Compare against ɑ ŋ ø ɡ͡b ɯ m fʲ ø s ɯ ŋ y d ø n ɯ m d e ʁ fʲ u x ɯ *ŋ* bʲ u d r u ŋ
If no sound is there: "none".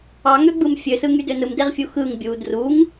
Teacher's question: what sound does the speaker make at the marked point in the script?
ŋ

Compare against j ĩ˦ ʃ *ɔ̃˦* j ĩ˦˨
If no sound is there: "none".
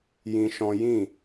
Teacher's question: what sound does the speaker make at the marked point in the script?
ɔ̃˦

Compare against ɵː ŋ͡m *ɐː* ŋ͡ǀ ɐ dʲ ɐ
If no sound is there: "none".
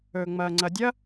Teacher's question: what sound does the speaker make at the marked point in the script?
ɐː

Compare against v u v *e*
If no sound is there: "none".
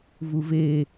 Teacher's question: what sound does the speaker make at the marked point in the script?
e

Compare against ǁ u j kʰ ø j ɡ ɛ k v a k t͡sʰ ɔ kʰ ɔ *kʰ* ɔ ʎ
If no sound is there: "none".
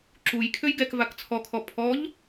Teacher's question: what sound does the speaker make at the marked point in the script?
pʰ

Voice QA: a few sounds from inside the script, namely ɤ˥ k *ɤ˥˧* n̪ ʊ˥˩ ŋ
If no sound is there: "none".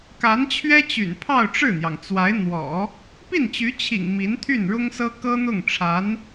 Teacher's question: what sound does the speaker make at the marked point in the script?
ɤ˥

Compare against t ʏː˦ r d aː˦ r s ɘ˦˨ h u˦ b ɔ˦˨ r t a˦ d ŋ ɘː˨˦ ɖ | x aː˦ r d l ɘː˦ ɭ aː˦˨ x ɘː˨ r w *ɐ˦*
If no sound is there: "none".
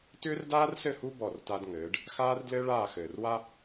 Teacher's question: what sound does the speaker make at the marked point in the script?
a˦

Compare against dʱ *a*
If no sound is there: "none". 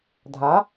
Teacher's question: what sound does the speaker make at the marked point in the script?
a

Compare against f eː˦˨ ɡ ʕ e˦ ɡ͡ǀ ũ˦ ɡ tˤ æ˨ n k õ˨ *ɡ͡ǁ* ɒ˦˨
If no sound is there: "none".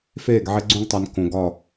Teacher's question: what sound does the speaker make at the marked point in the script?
ɡ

